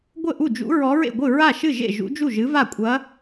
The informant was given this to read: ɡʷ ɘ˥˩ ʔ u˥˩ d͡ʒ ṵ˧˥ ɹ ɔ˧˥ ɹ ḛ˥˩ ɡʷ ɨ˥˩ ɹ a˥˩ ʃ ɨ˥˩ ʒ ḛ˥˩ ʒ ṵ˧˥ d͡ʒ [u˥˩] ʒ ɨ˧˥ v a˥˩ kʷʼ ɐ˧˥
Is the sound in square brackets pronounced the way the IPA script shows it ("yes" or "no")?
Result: yes